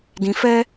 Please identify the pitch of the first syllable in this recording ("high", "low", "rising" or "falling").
low